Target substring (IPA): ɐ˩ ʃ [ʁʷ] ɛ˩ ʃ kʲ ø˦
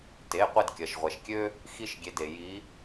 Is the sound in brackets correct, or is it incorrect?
correct